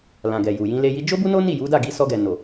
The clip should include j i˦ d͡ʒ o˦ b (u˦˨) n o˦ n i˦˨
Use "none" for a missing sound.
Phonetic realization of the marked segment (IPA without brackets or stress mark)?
u˦